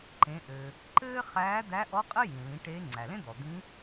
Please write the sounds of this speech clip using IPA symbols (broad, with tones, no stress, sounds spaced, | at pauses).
ǃ ẽ˩˧ ʔ ɘː˩ | ǃ ɘː˥ χ æː˧˥ d̪ æ˧˥ ʔ ɔ˧˥ qʼ ɘ˥ j ĩ˩ l ĩ˩˧ ʈ e˧˥ ŋ͡ǀ æ˩ l ẽ˥ d̪ ɔ˩ d̪ ĩ˧˥